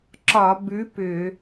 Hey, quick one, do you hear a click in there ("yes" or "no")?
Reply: yes